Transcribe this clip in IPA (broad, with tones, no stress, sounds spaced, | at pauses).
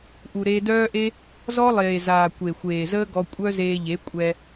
ʔ u˨ ɾ eː˧ d œː˦ ʔ e˦ | z ɔ˦ lˠ eː˨ z aː˨ kʷ e˨ xʷ eː˨ z əː˦ ɡ ɔ˧ kʷʼ œ˦ z eː˧ ʎ e˨˦ kʷʼ ɛ˧